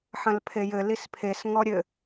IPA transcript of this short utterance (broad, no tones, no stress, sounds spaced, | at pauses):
ħ ɐ̃ l pʰ e j ɘ l i s pʰ e s ŋ ɔ ɾʲ ɘ